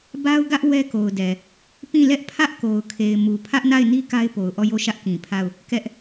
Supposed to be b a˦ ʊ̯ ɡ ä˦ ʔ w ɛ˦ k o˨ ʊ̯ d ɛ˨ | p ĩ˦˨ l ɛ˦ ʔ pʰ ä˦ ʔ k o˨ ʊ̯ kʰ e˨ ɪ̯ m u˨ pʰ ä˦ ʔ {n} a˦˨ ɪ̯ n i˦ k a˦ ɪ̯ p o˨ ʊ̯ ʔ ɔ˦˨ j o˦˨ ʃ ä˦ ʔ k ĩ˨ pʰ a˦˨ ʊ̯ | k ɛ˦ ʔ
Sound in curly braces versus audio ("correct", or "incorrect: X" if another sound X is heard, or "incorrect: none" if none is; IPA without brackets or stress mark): correct